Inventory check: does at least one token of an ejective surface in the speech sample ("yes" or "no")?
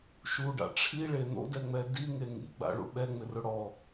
no